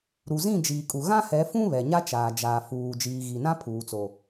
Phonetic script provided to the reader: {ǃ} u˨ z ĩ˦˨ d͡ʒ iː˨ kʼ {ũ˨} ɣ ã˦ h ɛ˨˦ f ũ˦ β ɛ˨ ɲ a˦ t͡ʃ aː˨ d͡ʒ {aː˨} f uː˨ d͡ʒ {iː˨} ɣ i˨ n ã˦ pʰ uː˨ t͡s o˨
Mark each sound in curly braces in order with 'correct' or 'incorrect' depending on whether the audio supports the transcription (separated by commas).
incorrect, incorrect, correct, correct